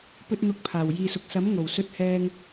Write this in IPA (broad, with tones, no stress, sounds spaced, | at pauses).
p ɵ˧ t̚ n̪ ʊ˨˥ k̚ pʰ aː˨˩ w j iː˨ s ʊ˨ k̚ s ɐ˨˥ m ŋ o˨˩ w s ɵ˧ t̚ h ɛː˧ ŋ